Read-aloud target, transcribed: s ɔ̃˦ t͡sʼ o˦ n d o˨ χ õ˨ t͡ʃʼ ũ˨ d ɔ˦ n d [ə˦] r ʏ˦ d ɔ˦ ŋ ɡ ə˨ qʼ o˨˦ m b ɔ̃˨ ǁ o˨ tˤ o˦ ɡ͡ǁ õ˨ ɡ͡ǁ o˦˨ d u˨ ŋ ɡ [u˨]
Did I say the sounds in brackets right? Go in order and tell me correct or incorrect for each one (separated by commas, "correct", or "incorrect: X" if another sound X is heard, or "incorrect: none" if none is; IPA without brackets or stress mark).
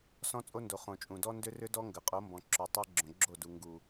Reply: incorrect: ʏ˦, correct